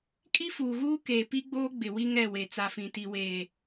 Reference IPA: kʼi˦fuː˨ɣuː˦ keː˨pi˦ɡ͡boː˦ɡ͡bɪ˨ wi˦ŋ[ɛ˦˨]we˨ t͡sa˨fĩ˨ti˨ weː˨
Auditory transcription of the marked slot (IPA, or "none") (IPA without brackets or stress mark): ɛ˦˨